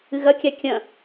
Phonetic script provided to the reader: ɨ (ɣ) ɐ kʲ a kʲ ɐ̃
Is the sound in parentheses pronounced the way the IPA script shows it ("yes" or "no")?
yes